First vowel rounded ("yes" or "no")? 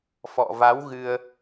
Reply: yes